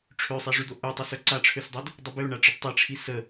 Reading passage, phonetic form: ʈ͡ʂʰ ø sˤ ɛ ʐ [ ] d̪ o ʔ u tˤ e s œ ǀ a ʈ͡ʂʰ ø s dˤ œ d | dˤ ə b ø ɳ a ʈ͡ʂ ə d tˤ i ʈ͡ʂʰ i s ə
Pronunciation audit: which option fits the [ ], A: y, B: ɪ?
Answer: A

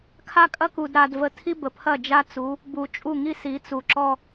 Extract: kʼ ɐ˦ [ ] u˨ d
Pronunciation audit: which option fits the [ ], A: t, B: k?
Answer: B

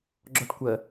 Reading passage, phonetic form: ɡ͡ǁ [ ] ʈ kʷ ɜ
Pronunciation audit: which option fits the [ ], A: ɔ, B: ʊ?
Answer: A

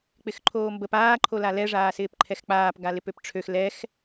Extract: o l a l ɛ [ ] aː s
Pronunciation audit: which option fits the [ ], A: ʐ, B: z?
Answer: A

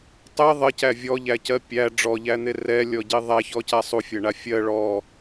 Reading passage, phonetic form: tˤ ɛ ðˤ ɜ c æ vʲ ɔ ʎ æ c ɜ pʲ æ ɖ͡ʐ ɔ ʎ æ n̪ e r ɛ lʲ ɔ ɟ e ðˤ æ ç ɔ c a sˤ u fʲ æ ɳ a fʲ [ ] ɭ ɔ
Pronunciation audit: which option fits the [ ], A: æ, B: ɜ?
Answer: B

